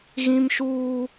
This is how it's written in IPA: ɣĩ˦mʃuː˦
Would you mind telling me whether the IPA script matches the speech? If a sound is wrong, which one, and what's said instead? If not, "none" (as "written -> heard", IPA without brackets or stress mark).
none